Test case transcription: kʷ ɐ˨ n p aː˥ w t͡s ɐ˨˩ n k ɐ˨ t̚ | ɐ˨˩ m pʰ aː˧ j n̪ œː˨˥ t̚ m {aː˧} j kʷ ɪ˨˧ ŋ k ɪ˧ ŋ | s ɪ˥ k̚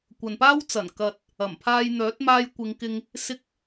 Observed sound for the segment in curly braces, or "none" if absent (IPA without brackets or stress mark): aː˧